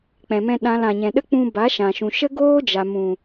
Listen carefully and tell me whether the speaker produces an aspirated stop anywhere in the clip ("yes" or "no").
no